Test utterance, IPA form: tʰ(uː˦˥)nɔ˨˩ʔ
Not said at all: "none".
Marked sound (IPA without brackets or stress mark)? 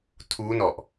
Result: uː˦˥